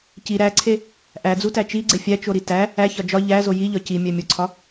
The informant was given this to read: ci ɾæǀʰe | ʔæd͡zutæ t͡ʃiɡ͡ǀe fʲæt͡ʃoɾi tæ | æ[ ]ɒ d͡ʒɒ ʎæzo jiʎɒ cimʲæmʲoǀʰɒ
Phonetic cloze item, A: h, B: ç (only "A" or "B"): B